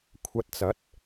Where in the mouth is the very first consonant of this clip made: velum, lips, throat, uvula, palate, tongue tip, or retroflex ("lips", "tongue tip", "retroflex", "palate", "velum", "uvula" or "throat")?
velum